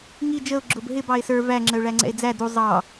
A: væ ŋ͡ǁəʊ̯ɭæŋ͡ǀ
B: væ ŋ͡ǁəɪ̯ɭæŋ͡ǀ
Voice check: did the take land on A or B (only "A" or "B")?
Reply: A